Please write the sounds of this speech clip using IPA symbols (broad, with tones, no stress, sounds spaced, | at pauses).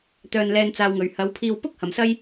t̪ œː˧ n l ɛː˧ n t͡s aː˧ w ŋ ɵ˨ ɥ h ɐ˨˧ w pʰ iː˧ w p ʊ˥ k̚ h ɐ˨˧ m s ɐ˥ j